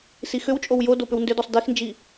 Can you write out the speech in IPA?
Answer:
sixʏwt͡ʃʼow jo dopʏwndʏdɔsˤ dixnd͡ʒi

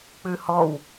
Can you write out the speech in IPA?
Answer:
k͡pʉhɔw

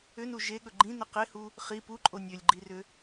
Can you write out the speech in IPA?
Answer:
ʏnu ʒeɠɵ ɡ͡ǃĩnə qehu | χi puǃʼo nʲølʲɡ͡ǃirʏ

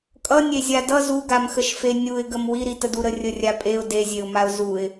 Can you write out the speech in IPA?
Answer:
kʼʌnʲezʲa dʌ zuɡamxəʃfe nʲuɪ̯ɡəm wiɾitədu ɾərʲərʲapʼeʊ̯ dezʲeʊ̯maʊ̯ zuɪ̯

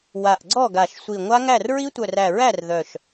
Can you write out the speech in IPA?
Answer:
wa˧˩ʔɡ͡ǀɔ˥˩ɡa˧˩ʃ sʷi˧˩ ŋʷa˦˥ŋæ˥˩r ɹi˦˥tʷœ˧˩ræ˧˩ɹæ˥˩r ðœ˧˩ʃ

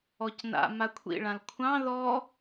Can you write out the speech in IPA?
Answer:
ɔcna̰ makʷʰḭɭãl kʷʰɑ̃ ðɔ

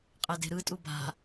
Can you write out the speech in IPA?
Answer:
qʼɛde̤ɾɯtʼu ba̤

